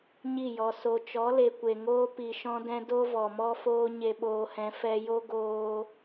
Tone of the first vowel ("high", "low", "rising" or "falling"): falling